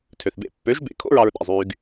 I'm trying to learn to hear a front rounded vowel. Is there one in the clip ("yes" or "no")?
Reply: yes